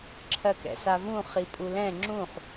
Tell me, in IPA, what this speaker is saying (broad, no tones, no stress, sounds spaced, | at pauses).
ǁʰ ɜ k ɛ̰ s a v ũ χ i pʼ u l ɛ̃ ŋ͡ǁ ũ χ